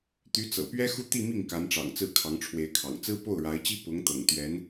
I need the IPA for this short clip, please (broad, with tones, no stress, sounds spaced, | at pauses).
t̪ y˧˥ t͡s ɤ̰˨˩ p ɥ ɛ˥ x u˥˧ t̪ i˥˧ m i˥˩ ŋ k a˧˥ n ʈ͡ʂ ɑ̰˨˩ ŋ t͡s ɹ̩˥˩ kʰ ɑ˧˥ ŋ ʈ͡ʂʰ w e˧˥ ɪ̯ kʰ ɑ̰˨˩ ŋ t͡s ɹ̩˥ p o˥˩ ʊ̯ ɻ a˧˥ ɪ̯ t͡ɕ i˥ p ʊ˧˥ ŋ t̪ ɤ̰˨˩ ŋ t̪ ɥ ɛ˧˥ n